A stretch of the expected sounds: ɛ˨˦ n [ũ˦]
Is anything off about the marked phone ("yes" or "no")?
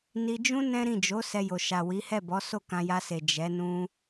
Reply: yes